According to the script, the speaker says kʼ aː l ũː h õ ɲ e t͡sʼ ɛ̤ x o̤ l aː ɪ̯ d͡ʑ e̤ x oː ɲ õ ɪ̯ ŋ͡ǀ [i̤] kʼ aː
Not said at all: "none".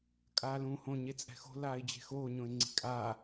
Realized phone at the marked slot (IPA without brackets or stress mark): i̤